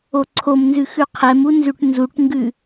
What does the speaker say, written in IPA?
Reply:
o ǀʰ o m n z ʉ x ʉ qʰ ɛ m u n z ʉ ʈ n z u ʈ ŋ ɡ ʉ

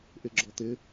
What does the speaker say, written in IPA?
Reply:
ʔ ɪ ɡ͡ǁ ɔ t̪ ɪ

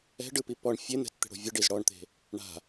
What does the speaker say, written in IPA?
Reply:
ɛ̤ ɖ ɯ p i p ɔ ɳ fʲ e n̪ ɛ̤ t t̪ e̤ ɽ o̤ vʲ ɯ ɖ i z ɽ ɔ ɳ t̪ e̤ | ɳ a̤

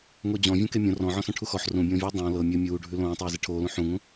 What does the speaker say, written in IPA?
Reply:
ŋ o d͡ʑ ɔ̃ vʲ õ k e mʲ õ r ɔ̃ ʕ ɔ̃ s ɔ̃ ʈʰ u x ɔ ħ r ũ bʲ õː vʲ oː dˤ õː l ɤ mʲ ɤ mʲ uː ɖʱ ʉ l õː tˤ eː z e ʈʰ oː l ũ ħ ũ ŋ ũ

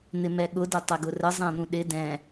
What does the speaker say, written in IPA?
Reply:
n̪ ɪ m ɛ ɠ ʊ d ə tˤ æ ɡ ʊ r ə zˤ æ̃ n̪ ũ ɗ ɪ d ɛ̃

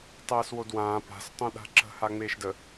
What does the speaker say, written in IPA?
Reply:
tˤ ɛː s w o d w ãː p a̤ s tˤ õ ɗ a̤ ǁ ə̤ h a ŋ͡m eː ʃ d ə

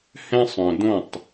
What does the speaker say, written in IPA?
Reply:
h ɛ̃˦ sˤ œ̃˨ d õ˦˨ tˤ

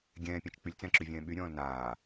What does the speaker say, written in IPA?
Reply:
ɡʲ ɛ̃ː pʲ ã t͡ʃ k͡p y lʲ t͡s ɛ̃ ǁ y vʲ ɛ̃ː ɓ y ɾʲ ɔ̃ː l n aː

